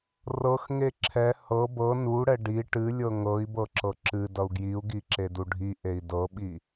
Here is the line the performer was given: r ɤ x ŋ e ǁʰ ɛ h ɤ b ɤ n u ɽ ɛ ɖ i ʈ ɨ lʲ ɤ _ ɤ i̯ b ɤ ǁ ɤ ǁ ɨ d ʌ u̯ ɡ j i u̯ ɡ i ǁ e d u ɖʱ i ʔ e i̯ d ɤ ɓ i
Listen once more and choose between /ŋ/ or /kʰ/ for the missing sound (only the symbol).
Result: ŋ